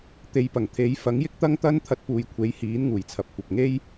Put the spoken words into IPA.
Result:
t̪e˨˧jpɐ˨˩ŋt̪ʰe˨˥j fɐ˨˥ŋjɪ˥k̚t̪ɐ˥ŋt̪ɐ˥n t̪ʰɐ˧t̚puː˨jkʷʰe˨˥jhiː˨˥n ŋuː˨jt͡sʰɐ˧p̚ kʷɐ˨p̚ŋe˥j

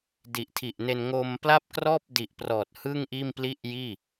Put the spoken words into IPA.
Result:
di˨˩ʔtʰi˨˩ʔne˧n ŋo˧m pla˥˩p̚krɔː˥˩p̚di˨˩ʔprɔː˨˩t̚ hɯ˥˩ŋʔiː˥˩mpli˥˩ʔjiː˥˩

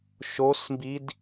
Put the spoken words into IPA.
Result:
ʃosmbid

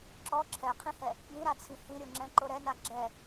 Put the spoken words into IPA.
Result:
ǁɔ ǁʰɛqʰĩhɛ | bĩɾat͡sʰĩ hĩɾʲoŋ͡ǁɛ̃ǃo ɾɛna ɡ͡ǁɛ

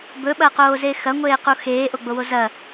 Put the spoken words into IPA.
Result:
bɵɓɐqoːze xɐŋʷeːqu xeːʔoɡ͡bowo zɐ

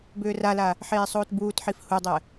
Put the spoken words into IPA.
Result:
bʏːrala | ħeːsˤoːtbuːtħif hudˤɛ

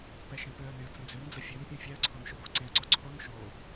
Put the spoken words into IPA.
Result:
pɛʃẽpøə̯nẽə̯ t͡sə̃d͡zønd͡zə fʲøn pʲõfʲɛə̯ǀʰon ʃoboǀẽə̯ǀo ǀʰon ʃo

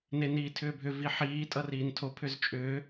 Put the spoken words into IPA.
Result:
neniːtʰʏːbʱʏ viħiː tʼʌriːntʰo pʰʏzt͡ʃʼʏː

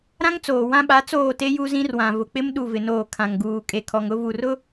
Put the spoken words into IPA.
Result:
ɾã˦ŋt͡soː˨ wã˦ɓa˨˦ t͡soː˦˨te˦ ju˦zĩ˦rwã˨ vʊ˨k͡pɪ˦m ɗu˦˨vɪ˨noː˦˨ kʰã˨ŋɡuː˨ kʼe˨kʰɔ˨ŋʊ˦vu˨r ʊ˦

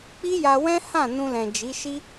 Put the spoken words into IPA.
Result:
k͡pi˦ja˧wɛ̃˦ hã˦˨ nũ˧lɛ̃˨ d͡ʒi˨˦ʃi˦

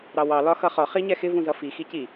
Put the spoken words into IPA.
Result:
ɾɑwɑ lɒxʌχɒ χiɲɛxɪ vũzʌfi xici

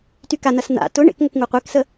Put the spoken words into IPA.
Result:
tykanɐs na̰ tʊ ɳḛkŋʊk ŋuqʷeksə

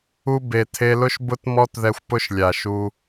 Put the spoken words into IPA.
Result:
u˧ be˨tʰe˧ lʊ˦ʃbʊ˦tmɔ˦tðɛ˧xʷ pʊ˦ʃlʲa˨ʃu˧

